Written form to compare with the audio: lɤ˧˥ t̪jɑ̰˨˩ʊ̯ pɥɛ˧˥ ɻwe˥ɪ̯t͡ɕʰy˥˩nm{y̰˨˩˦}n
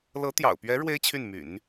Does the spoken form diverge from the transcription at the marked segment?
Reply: no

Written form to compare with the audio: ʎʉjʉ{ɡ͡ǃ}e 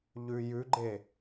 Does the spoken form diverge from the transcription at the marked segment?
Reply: no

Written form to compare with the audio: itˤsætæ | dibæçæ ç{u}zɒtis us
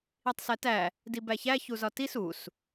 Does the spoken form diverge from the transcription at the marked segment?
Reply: no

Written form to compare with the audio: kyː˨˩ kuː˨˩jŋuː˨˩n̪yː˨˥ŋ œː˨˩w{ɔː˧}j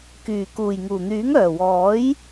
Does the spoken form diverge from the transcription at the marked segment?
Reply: yes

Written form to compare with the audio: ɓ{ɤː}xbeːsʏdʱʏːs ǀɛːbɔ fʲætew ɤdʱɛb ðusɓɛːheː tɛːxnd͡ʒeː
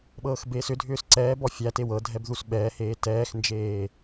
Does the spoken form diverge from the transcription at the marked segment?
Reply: no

